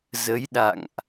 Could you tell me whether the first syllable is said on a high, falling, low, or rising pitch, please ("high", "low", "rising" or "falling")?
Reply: rising